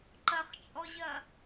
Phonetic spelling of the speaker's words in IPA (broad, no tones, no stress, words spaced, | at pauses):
ǃɐχt͡ʃʼɔʑɐ